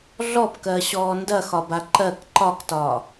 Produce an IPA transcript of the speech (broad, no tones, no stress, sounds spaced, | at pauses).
ɮ ɔ p k ɜ ɕ ɔː n d ɐ x ɒ b a ǃ ɜ k ǃ ɒ k t ɒː